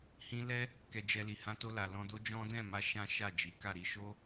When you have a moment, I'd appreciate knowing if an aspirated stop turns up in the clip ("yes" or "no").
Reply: no